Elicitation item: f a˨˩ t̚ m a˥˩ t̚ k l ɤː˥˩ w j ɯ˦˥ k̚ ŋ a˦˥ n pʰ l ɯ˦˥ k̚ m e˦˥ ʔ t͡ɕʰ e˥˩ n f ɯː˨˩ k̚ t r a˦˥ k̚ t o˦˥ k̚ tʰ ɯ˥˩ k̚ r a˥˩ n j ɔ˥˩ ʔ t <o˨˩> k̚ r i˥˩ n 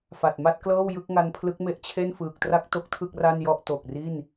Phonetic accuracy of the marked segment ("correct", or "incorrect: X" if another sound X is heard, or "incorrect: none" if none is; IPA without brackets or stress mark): correct